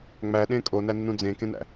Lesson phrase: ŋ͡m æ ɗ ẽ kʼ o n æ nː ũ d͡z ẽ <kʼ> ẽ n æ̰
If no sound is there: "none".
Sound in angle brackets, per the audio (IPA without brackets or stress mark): k